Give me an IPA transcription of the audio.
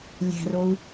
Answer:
lʲ æ̤ r o u̯

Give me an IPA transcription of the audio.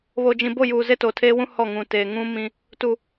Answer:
β o˨ d͡ʒ ĩ˨ b o˦˨ j uː˨ z e˦ t o˨ tʰ eː˦ w ũ˦ h ɔ˦˨ ŋ ũ˨ t eː˨ ŋ ũ˦ m ĩ˦ | t u˨

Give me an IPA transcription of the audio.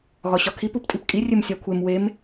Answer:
ɣ ɒ ɕ ɒ kʰ i p u p tʼ i p kʼ i rʲ e m sʲ æ kʷʰ e m w e m

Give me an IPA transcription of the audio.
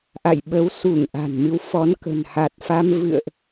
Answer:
ʔ a̰˧˨ j ɓ ə˨˦ w s u˧˩ ŋ ʔ a̤˨˩ n m ɨ˨˦ w f ɔ˨˦ n k ə̤˨˩ n h a˨˩ t̚ f a˧ m v ɨ̰˧˨ ə̯ ʔ

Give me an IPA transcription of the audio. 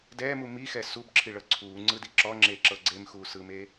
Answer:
d ɛː m u m i x ɛ s u b ǁʰ i ɭ ɤ ǀʰ uː ŋ͡ǀ ɯ d i ǁ ɔ ŋ͡ǁ eː ǁ ɤ ɡ͡ǀ e m x uː s ɯː m eː

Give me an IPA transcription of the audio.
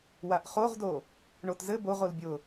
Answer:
w a ʔ χ o ʁ d o | ɳ o t z ɘ b o ʁ o l bʲ ʊ

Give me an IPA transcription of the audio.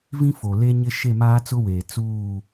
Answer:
v ĩ˦ f o˨ l e˦ ɲ ɪ˦ ʃ e˦˨ m aː˦ t͡s ʊ˦ w eː˨ t͡s uː˦˨

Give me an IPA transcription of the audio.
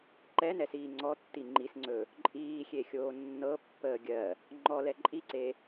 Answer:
ǃ ɛ n ɛ s iː ŋ͡ǀ ɔ tː i ŋ͡ǃ i s ŋ͡ǀ ɵ | ǃʼ iː xʲ e xʲ oː nː ɤ pː əː ɡʲ ɜ | ŋ͡ǃ ɔ l ɛ ǃʼ i ǀ e

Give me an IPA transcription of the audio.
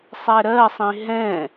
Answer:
sˤ ɛ ɾ ɜ sˤ ĩ ɦ ɛ̃

